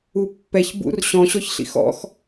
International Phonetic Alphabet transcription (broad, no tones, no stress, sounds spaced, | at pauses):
u pː ɛ ç b ṵ r ɕ ɔ̃ ɕ ɔ ç ɬ ḭ x ɔ̰ x